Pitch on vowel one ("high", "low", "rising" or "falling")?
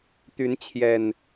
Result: rising